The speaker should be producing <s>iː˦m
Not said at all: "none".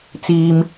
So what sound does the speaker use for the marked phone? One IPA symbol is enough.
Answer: t͡s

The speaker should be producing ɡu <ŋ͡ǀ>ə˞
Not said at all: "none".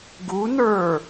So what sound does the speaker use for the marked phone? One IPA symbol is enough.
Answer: n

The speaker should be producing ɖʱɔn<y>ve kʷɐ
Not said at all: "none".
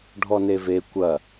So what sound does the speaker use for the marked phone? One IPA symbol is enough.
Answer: e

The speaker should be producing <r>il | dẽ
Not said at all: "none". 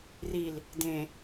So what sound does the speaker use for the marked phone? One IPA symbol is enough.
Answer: r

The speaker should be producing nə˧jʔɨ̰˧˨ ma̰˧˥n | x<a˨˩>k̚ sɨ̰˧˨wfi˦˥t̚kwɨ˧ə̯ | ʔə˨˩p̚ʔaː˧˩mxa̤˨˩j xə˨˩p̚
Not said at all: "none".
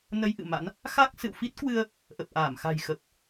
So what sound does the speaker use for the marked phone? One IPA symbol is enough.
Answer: a˦˥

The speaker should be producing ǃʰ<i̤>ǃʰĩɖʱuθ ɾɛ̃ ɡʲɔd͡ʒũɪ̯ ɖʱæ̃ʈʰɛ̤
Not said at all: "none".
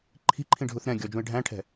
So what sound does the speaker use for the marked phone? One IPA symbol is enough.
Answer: i̤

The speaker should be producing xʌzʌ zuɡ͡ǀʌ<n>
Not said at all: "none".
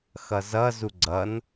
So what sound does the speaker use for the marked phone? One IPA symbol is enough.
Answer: n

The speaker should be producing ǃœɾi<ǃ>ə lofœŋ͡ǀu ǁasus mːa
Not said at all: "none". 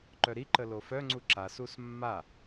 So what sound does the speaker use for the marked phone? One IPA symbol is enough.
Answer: ǃ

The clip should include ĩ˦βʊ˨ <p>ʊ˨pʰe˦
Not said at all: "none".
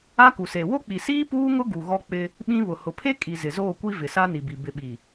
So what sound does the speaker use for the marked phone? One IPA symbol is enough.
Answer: h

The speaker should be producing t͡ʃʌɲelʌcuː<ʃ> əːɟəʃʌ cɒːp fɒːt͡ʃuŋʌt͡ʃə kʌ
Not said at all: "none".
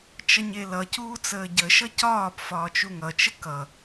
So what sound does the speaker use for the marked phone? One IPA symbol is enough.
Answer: t͡s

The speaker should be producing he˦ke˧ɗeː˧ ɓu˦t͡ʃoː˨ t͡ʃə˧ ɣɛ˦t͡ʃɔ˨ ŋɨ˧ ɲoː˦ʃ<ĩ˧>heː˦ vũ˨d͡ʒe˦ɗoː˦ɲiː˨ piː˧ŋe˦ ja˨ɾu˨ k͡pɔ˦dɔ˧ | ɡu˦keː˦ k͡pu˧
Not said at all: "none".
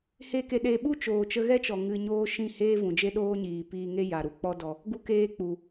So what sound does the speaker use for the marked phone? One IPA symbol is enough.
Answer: ĩ˦˨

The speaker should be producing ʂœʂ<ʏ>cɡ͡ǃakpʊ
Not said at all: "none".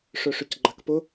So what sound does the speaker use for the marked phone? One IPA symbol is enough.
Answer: ʏ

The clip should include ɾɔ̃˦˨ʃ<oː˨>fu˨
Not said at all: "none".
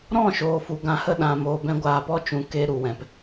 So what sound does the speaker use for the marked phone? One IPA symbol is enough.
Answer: oː˨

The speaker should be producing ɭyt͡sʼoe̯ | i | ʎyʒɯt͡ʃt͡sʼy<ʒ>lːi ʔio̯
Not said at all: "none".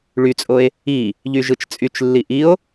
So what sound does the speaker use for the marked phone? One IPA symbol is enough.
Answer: t͡ʃ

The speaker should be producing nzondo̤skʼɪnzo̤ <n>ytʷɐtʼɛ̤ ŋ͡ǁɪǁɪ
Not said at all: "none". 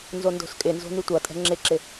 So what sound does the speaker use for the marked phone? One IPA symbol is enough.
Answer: n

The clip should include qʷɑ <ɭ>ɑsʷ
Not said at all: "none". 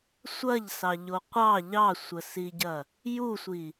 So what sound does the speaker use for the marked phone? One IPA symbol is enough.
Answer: ʎ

